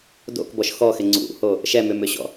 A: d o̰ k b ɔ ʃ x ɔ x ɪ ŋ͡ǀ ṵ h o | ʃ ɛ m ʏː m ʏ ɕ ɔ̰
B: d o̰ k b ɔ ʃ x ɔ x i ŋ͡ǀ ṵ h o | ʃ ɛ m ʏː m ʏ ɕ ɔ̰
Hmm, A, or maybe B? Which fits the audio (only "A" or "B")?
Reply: A